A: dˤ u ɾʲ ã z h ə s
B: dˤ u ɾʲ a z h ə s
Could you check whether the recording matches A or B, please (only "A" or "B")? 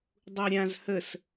A